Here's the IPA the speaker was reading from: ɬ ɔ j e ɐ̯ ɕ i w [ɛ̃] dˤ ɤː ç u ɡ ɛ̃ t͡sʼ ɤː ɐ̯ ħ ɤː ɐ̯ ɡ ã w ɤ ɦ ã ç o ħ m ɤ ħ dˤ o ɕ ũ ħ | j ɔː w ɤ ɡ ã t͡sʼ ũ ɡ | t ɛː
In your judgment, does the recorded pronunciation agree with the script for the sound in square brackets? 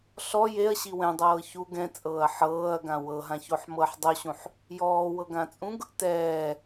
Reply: yes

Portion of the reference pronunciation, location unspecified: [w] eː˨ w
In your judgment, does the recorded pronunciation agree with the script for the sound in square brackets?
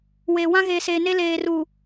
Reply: yes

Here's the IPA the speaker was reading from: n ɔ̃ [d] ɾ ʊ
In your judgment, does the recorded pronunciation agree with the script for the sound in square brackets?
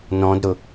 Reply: yes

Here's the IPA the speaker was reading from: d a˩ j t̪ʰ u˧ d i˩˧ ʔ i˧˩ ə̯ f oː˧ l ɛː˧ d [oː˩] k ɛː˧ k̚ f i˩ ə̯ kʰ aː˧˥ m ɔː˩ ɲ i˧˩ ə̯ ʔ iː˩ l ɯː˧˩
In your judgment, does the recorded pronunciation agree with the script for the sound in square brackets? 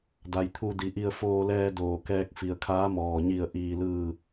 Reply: yes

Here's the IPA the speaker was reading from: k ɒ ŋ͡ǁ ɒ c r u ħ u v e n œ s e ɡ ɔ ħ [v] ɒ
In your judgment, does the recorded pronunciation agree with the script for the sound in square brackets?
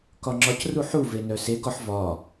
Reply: yes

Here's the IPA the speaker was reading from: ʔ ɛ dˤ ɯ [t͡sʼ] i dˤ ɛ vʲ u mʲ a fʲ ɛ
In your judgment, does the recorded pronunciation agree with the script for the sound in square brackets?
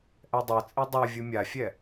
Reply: yes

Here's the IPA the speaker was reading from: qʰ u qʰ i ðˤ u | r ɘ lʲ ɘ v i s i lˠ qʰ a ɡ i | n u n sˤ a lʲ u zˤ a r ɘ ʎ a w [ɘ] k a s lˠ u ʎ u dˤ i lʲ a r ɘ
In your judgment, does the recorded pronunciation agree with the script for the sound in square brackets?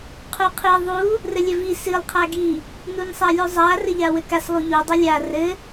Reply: yes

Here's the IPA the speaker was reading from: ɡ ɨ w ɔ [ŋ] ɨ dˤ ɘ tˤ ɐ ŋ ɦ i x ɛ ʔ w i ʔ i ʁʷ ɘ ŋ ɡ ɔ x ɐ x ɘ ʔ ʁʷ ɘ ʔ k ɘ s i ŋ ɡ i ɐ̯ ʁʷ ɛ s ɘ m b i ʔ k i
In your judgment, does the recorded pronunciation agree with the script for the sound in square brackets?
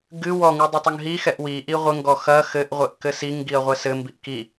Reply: yes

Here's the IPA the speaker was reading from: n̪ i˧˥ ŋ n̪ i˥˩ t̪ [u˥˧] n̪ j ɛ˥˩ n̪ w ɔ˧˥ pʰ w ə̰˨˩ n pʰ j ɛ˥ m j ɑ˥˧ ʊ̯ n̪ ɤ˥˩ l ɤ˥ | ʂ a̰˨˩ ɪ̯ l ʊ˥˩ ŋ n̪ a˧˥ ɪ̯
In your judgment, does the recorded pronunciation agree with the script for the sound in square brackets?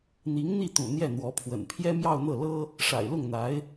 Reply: no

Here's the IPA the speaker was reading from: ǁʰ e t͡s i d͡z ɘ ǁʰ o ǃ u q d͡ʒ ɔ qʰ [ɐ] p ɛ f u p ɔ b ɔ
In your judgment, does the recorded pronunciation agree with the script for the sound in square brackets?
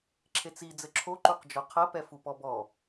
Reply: yes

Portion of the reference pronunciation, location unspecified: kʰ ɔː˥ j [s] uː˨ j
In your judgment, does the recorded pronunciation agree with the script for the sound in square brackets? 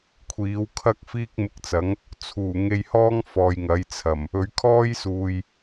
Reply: yes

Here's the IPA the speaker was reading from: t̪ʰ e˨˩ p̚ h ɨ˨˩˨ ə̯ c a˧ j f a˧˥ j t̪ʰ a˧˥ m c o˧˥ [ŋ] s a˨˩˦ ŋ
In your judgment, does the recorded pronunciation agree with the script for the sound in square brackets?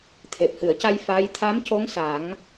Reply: yes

